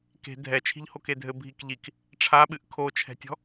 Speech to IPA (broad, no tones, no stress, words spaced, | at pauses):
ke̤ dʱɛ t͡ʃʰi̤ʎhokedʱɘ bʱikʎik | ʈ͡ʂʰaɓɨʔ kʰot͡ʃʰɛ̤tʲɔ̤